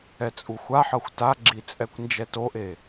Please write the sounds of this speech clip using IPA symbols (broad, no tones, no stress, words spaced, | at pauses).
ɛt͡sʼuxʷaħɤxʷ taɡ͡ǁi t͡sʼɛkʷnd͡ʒɛtoʔe